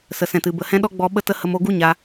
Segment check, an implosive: present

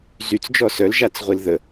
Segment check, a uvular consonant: present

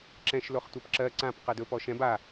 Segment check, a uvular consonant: present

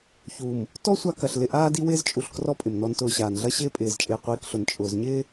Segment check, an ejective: present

